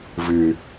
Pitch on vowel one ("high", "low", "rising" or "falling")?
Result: low